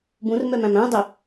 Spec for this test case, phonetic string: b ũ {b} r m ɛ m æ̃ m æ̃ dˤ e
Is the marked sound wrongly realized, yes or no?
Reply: yes